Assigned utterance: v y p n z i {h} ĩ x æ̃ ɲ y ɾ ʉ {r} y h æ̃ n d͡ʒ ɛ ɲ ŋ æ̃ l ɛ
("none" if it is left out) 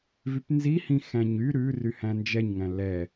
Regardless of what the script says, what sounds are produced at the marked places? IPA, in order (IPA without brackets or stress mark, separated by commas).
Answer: h, r